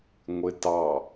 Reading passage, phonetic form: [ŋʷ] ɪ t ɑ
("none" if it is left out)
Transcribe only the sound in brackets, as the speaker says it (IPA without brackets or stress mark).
ŋʷ